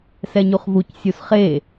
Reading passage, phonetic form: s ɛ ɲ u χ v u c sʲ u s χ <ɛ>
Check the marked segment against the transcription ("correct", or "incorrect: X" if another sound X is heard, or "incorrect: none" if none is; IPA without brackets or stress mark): incorrect: e